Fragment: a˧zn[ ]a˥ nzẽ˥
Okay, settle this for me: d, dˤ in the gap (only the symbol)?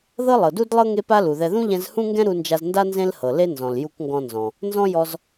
d